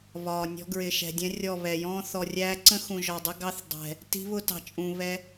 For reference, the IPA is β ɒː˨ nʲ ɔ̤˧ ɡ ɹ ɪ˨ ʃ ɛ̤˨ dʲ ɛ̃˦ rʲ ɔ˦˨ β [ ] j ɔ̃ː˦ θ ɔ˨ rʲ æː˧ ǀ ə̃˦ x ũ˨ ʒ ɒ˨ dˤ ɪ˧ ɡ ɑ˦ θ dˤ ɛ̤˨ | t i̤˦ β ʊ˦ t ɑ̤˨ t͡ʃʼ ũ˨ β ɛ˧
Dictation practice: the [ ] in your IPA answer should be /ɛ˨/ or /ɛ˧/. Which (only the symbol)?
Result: ɛ˨